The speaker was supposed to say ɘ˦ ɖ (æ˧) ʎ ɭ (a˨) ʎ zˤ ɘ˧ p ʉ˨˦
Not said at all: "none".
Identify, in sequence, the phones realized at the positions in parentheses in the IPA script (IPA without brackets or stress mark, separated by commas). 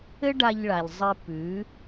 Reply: a˧, a˨